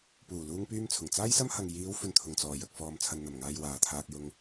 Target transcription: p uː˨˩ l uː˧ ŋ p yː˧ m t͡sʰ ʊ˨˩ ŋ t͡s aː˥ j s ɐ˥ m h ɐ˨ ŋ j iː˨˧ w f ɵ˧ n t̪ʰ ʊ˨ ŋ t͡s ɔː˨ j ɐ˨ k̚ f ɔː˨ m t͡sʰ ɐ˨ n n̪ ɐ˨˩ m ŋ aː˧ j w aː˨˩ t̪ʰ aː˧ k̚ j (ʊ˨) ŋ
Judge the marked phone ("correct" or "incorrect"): incorrect